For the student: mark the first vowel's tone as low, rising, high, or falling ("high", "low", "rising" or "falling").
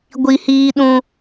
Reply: low